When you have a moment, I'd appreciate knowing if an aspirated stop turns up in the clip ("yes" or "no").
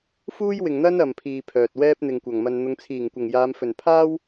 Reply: yes